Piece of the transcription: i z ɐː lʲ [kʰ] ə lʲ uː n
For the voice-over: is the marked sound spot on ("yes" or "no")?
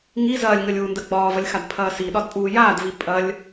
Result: no